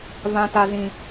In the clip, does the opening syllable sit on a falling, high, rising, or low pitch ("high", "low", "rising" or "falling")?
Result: high